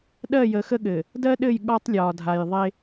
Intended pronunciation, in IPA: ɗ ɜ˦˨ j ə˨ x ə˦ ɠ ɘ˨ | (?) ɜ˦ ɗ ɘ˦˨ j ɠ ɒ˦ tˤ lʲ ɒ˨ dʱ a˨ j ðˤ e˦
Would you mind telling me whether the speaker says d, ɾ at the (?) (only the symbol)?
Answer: d